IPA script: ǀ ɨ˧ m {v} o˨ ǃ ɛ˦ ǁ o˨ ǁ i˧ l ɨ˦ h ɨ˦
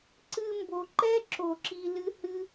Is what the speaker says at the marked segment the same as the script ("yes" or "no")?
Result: no